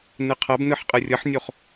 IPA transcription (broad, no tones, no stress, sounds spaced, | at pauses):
n ɯ qʰ ʌ b n ɯ ħ qʼ ɯ rʲ ʌ ħ nʲ o χ